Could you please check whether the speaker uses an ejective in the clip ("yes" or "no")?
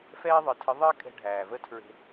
yes